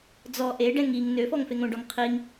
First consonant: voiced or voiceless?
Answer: voiced